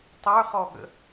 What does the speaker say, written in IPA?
tˤ ə˞ χ ɔ ɠ ə̰

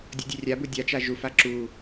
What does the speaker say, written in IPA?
dʲ ɔ dʲ ø rʲ a b u dʲ a t͡ʃ a ʒ u f a ǁ u

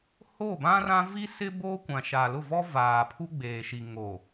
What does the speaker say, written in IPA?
h o˦˨ b ã˦ r ã˦ v i˦ s ɪ˦ b oː˦ kʷ ã˨ ʃ a˨ l ʊ˦˨ v ɔ˦ v aː˨ pʰ u˦ ɡ͡b eː˨ ʃ i˨ ŋ o˨

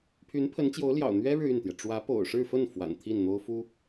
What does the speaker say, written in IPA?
pʰ y˧˥ n pʰ ə˧˥ n t͡ɕ j o˧˥ ʊ̯ l j ɑ̰˨˩ ʊ̯ n̪ ɥ ɛ˥ ɻ ɻ̩˨ y˥˩ n t̪ j ɛ˩ ʈ͡ʂ w ä˧˥ p o̰˨˩ ʊ̯ ʂ ɻ̩˥˧ f ə˥˩ n f w a̰˨˩ n t̪ʰ i˥˩ n n̪ o˥ ʊ̯ f u˥

